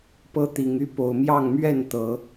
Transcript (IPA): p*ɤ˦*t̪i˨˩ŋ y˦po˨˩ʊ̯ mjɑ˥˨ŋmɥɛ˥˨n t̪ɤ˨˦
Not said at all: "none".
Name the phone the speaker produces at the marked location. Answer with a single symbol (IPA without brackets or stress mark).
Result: ɤ˦